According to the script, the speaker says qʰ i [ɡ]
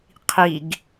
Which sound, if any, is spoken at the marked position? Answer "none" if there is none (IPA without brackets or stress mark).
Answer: ɡ